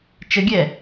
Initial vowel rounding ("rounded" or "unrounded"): unrounded